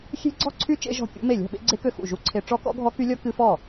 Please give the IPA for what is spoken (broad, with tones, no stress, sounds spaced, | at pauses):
xʲ e̤˦˥ ɡ͡ǀ ɔ̤˥˩ ǀʰ y˦˥ t͡ʃ ḛ˦˥ ʒ ɔ̤˥˩ kʲ ṵ˦˥ m e˥˩ lʲ ɔ̤˥˩ ɓ ḛ˦˥ ɡ͡ǀ e˦˥ k ø˥˩ x ṵ˥˩ ʒ u˦˥ ǀʰ e˦˥ ʈ͡ʂ ɔ˦˥ k ɔ̰˦˥ ɡʱ ɔ˦˥ k y˦˥ lʲ ɔ˦˥ k ɨ˦˥ f ɔ˥˩